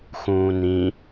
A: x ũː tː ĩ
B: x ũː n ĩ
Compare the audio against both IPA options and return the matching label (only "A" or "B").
B